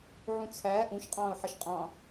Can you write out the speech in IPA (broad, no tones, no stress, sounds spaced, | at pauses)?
ʕ ũ t͡sʰ æː ʔ ũ ʃ qʼ ɑ̃ː ʊ̯ ħ ʌ ʃ qʼ ɑ̃ː